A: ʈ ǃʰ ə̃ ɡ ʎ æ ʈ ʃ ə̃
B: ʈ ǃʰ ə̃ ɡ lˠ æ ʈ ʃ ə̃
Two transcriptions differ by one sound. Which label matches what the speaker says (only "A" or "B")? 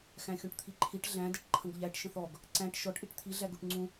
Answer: A